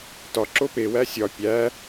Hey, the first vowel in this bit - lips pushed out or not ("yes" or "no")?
yes